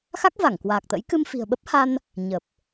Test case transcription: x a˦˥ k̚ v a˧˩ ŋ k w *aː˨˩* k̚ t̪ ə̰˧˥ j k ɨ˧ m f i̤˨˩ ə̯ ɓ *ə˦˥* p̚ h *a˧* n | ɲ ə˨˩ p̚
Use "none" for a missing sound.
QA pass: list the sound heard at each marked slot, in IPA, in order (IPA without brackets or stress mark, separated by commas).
aː˨˩, ə˦˥, a˧